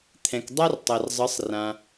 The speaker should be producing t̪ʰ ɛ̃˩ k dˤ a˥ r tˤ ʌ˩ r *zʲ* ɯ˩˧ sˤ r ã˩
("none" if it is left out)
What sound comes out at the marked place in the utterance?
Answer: zˤ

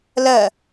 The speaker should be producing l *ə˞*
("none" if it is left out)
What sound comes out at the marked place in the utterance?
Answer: ɜ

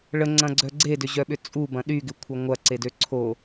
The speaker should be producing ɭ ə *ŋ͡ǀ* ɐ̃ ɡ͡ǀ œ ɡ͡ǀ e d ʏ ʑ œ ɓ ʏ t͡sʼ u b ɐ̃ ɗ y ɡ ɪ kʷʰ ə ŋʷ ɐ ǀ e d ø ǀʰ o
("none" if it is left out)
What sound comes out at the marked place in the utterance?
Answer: ŋ͡ǀ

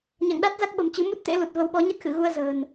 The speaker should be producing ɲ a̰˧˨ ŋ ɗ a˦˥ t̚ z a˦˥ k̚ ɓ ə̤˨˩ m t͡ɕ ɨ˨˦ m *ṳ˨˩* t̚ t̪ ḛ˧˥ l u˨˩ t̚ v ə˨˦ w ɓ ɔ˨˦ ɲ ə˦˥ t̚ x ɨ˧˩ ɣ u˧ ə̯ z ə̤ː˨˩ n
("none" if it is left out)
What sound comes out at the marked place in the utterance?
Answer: u˦˥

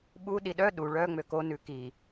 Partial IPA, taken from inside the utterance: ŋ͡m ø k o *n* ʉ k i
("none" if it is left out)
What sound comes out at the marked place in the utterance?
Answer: n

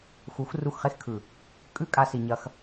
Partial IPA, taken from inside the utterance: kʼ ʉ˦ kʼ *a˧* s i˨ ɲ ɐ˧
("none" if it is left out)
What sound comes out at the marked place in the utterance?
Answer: a˧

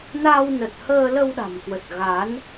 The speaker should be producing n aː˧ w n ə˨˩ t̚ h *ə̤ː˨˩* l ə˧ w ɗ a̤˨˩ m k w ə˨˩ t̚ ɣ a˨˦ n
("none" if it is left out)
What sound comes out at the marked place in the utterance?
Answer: əː˧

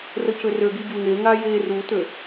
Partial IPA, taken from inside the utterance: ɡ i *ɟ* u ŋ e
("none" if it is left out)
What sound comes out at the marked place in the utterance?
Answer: ɟ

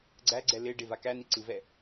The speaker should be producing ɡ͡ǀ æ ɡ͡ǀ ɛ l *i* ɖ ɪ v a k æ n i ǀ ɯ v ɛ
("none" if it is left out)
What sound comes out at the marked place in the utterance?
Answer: ɪ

